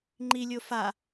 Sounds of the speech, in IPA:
ŋ͡ǃ i lʲ o f a

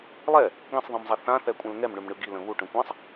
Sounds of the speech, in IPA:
lˠ ɛ | ɡ ɛ̃ sˤ ðˤ ĩ m zˤ ɛ θ ã θ ɛ kʷʼ ɛ̃ l ŋ ɛ m ɳ ʏ m ɳ ɯ ɡ i l ə̃ β u ʈ ə̃ kʷ ã sˤ

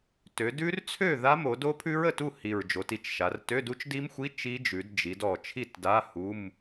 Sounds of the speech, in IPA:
t ø˩˧ d ʉ˦˥ r t͡sʰ ø˥˨ ð a˦˥ m o˩˧ d o˦˥ pʰ ʉ˦˥ ɹ ə˨˩ t u˥˨ h i˨˩ ɹ d͡ʒ o˩˧ t i˥˨ t͡ʃ ʃ a˩˧ r t ø˧˥˧ d u˦˥ t͡ʃ d i˦˥ m xʷ i˧˥˧ t͡ʃ i˦˥ d͡ʒ ʉ˩˧ d d͡ʒ i˩˧ d ɔ˨˩ t͡ʃʰ i˥˨ t d a˧˥˧ h u˧˥˧ m

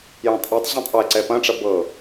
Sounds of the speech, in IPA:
j õ tˤ ʔ e tˤ ʑ ɛ̃ tˤ ʔ ɛ ǀ ɛ p ɐ̃ ʈ͡ʂ ɐ b ɤ

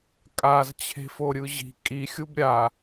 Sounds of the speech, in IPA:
kʼ a z t͡ɕʰ e̤ f o ɾʲ ɯ ʑ i̤ kʼ i xʲ u b ɾʲ a

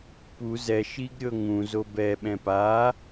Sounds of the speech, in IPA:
p u z ɛ ʃ i ɡ ɾʲ ɤ ŋ ũ z o b ɛ ɓ ɛ̃ p a

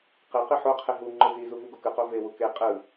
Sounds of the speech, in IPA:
q e q i ħ o qʰ e ɦ u ŋ͡ǃ ɯ z i z u v u ɡ o k ɯ q o v e w u k e qʼ ɯ

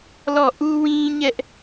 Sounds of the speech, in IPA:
l ɔ˦˨ ʔ u˦ w ĩ˦ ɲ ɛ˦ ʔ

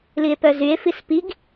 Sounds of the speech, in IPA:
l i e̯ p œ z y e̯ f i s p i ɡ

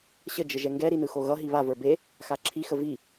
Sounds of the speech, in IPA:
ɕ ə d͡ʒ ə ʒ ɛ ŋ ɡ ɛ ɾ i n ɯ x o ɣ ʌ ɦ i β a v ə˞ b e | x a ǁʰ i x ə v i

